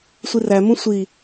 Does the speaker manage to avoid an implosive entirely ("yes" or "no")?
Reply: yes